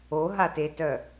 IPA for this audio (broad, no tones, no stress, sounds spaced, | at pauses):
o ɦ a t e t œ